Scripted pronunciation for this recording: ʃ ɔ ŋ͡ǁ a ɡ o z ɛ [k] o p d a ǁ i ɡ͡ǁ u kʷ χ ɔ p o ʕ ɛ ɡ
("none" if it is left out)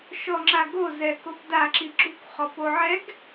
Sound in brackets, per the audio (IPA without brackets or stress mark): k